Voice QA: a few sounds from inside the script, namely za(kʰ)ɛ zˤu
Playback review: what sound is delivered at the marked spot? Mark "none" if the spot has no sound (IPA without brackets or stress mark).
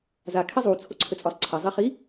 kʰ